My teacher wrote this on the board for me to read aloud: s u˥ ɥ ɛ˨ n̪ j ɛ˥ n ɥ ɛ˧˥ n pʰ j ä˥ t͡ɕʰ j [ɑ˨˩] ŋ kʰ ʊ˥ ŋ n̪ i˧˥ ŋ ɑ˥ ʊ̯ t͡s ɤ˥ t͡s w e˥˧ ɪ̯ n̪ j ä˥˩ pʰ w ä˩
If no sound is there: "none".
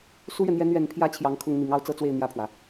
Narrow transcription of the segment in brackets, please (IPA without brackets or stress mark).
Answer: ɑ˧˥